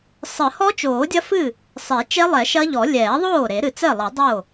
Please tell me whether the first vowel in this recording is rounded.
no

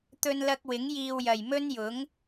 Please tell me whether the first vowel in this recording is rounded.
yes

